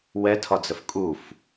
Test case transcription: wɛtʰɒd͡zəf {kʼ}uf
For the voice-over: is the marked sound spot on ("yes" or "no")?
yes